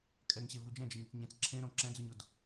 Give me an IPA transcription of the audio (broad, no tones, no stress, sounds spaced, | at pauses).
kʼ ɛ ŋ ɕ e v u d͡ʒ ɛ̃ d͡ʒ e ɲ ɪ t͡s ɲ ẽ t͡s ǁʰ ẽ ɾ õ ǁ ɛ̃ d͡z u ɲ o d